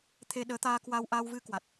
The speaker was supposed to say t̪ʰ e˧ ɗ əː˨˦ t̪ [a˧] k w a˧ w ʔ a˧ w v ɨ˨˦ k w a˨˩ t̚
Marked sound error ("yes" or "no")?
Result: yes